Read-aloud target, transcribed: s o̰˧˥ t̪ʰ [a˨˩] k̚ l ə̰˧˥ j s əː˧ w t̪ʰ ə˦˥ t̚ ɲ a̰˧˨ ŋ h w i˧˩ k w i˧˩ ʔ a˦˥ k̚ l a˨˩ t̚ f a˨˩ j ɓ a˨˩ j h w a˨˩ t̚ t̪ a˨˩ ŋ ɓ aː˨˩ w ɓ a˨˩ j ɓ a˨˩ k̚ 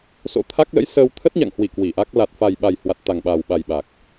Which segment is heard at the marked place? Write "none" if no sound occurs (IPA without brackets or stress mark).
a˦˥